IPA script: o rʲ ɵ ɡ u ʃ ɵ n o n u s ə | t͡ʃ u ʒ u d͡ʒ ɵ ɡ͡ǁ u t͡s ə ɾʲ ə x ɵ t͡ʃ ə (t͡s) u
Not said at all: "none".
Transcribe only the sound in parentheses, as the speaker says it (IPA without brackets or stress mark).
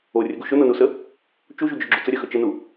n